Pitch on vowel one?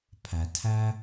low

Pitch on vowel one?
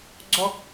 high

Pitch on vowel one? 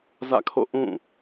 falling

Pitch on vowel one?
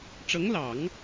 rising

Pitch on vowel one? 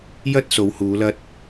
high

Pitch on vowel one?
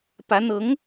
rising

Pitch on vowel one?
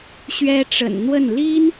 high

